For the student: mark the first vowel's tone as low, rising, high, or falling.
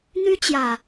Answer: high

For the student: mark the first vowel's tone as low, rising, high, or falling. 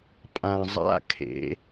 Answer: low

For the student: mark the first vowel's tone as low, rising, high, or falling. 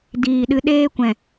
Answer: low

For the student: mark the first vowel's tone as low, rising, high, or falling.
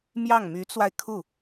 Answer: falling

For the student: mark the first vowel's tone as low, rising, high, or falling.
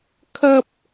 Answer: high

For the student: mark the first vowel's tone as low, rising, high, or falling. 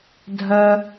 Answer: high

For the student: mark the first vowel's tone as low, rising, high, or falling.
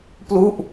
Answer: falling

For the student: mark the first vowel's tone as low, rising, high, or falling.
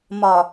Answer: low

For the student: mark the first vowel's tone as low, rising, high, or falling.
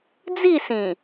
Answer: falling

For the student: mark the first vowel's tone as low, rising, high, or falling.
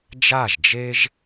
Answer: falling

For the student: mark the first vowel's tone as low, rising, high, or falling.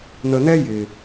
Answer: low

